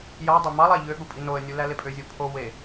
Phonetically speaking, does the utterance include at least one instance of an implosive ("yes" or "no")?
yes